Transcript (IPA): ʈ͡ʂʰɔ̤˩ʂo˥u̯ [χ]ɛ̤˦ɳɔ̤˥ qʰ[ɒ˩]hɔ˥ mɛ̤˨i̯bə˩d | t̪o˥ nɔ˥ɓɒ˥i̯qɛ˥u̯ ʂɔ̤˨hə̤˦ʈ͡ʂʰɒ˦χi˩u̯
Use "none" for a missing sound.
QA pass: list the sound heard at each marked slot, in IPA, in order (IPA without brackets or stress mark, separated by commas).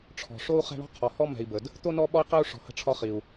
χ, ɒ˩